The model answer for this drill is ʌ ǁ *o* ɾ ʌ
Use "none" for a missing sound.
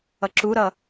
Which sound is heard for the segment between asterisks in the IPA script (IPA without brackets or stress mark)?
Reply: u